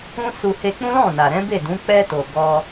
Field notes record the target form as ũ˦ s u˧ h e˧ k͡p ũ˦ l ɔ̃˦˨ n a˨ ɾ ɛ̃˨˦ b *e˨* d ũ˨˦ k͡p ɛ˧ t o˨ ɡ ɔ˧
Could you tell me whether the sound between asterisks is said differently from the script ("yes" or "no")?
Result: yes